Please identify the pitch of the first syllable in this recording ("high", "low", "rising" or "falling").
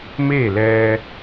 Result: falling